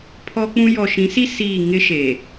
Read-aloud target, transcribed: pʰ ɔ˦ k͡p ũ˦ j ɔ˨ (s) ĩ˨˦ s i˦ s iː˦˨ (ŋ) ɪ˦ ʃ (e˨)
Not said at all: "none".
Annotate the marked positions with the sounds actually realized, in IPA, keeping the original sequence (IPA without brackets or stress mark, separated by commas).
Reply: ʃ, ŋ, e˨